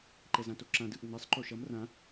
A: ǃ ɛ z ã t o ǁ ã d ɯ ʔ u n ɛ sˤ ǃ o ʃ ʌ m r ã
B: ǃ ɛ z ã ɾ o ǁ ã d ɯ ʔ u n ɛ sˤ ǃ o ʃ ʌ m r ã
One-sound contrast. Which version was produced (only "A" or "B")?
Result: A